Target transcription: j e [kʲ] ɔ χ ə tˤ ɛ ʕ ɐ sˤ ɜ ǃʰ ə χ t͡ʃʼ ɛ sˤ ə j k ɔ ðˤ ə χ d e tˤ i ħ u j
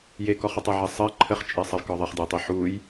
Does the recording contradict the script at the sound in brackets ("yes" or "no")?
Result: yes